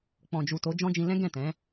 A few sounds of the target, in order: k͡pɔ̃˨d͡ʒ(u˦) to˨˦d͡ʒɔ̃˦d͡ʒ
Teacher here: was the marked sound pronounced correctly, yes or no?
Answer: no